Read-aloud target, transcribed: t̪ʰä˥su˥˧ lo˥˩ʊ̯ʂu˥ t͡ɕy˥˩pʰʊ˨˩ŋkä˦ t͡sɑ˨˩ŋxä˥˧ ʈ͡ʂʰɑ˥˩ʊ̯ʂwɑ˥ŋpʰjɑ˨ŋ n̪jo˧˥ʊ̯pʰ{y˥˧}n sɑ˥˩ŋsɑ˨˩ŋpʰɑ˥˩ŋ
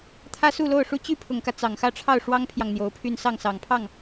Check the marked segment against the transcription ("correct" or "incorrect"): correct